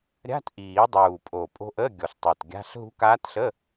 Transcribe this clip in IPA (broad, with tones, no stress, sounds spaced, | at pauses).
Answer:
ɾʲ a̤˧˥˧ t ʔ iː˨˩˦ dˤ uː˨˩ pʼ o˨˩ pʼ o̤˧˥ ʔ ə˧˥˧ ɡʲ ɔ˨˩ ɬ tˤ u˨˩ t ɡʲ a̤˧˥˧ ɬ ɦ ṳ˧˥ k aː˧˥ t ɬ ə˧˥˧